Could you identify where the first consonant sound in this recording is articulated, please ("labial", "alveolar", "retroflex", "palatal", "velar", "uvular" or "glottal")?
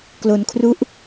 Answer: velar